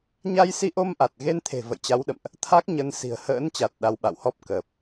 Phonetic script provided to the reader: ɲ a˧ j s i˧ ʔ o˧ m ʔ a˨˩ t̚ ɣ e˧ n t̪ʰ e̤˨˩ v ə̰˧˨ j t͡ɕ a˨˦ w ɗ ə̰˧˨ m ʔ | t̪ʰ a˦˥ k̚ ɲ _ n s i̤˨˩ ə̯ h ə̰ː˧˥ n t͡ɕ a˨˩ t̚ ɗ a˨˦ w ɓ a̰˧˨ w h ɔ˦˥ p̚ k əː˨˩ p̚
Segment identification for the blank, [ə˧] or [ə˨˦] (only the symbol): ə˨˦